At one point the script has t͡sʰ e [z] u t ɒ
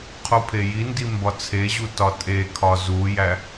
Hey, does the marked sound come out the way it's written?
no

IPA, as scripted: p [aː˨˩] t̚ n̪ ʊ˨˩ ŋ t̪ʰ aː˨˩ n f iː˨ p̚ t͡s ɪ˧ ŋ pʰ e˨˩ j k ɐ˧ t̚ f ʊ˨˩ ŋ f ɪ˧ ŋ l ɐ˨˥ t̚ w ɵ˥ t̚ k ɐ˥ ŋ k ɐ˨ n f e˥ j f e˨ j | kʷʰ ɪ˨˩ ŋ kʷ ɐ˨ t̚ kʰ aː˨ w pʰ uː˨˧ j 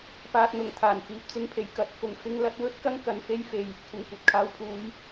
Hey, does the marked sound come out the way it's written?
no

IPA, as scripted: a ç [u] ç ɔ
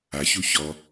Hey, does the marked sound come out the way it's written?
yes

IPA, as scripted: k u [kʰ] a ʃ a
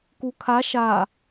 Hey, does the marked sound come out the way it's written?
yes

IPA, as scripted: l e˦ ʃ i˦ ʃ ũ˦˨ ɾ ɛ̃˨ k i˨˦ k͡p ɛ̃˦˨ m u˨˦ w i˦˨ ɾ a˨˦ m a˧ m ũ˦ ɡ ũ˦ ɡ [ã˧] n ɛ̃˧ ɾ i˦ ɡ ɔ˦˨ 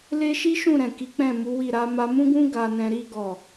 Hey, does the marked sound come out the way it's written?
no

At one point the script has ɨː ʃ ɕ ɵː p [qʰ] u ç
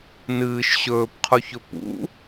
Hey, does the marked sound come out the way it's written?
yes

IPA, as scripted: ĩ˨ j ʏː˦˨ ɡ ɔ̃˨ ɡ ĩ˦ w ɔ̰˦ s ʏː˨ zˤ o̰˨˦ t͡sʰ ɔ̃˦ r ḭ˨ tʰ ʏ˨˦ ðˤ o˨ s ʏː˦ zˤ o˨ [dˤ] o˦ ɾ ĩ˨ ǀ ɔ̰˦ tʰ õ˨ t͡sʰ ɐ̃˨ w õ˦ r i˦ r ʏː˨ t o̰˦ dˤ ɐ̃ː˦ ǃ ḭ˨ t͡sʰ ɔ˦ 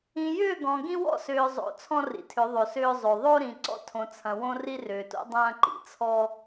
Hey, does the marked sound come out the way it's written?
no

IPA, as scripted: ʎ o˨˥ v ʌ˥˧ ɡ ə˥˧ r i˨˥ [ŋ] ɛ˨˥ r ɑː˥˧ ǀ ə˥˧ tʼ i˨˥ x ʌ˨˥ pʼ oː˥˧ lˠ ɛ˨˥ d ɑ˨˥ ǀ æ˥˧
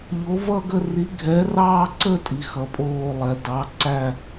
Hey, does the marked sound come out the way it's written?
no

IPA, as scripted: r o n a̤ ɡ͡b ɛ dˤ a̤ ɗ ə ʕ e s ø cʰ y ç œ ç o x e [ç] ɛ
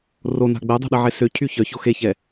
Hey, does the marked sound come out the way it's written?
yes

